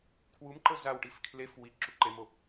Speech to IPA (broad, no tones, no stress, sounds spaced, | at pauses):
kʰ w u m ǃ ɤ z a w ʈ i f kʰ l e f w i ǁ u ǃ e m o